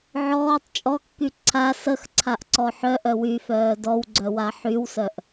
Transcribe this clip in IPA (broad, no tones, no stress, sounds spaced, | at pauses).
ʕ ɔː tˤ t͡ʃʼ ɔ kː y ǀʰ a s ə x ǀʰ a ʔ ǀ ɔ ħ œ ʔ œ w y f œː d ɔ w ɡ͡ǀ œ w a ħ y w s œ ʔ